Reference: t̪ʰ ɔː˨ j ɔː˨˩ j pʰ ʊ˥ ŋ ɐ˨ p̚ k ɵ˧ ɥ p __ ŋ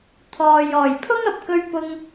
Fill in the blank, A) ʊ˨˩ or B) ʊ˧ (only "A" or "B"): B